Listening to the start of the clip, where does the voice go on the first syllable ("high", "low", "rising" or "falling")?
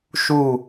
falling